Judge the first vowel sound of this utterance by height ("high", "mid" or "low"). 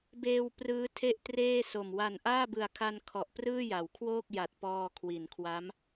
mid